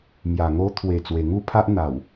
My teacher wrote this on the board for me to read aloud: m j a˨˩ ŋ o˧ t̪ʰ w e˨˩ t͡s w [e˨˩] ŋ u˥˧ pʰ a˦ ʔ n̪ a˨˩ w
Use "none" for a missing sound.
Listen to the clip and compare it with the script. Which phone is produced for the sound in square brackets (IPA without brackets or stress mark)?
e˨˩